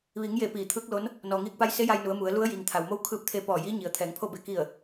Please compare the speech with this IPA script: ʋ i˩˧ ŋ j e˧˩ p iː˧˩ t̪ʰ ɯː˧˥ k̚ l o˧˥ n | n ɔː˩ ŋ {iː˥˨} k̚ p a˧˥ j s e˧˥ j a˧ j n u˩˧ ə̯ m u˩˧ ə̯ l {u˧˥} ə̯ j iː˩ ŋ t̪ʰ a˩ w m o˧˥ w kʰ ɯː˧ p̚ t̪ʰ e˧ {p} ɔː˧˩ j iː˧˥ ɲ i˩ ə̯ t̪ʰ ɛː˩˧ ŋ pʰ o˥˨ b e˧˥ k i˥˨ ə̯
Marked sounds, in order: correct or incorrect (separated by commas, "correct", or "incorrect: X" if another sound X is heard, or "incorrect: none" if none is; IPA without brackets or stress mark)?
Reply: incorrect: iː˧, correct, correct